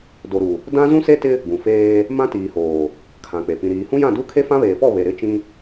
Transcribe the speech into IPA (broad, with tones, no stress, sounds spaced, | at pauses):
d o˨ ɾ u˨ | d ã˦ z ũ˦ s e˦ t ɪ˦ | ɡ ũ˨ f eː˦ | m ã˦ t iː˨ h oː˨ | kʰ ã˨ k͡p e˨ p ĩ˨ ɾ iː˨ h ũ˦ j ã˦˨ d u˦ kʰ e˦ f ã˦ β eː˨ f ɔ˦˨ β e˨ ɾ ɪ˦˨ t͡ʃ ĩ˦